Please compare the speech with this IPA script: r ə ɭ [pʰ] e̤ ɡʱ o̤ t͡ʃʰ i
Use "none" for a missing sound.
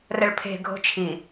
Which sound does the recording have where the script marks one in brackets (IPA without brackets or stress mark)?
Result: pʰ